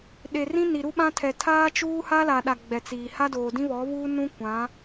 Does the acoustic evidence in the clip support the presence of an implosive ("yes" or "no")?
yes